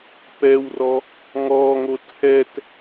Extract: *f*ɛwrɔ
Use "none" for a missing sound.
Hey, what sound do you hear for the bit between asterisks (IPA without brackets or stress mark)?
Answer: p